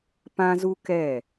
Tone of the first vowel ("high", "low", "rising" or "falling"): high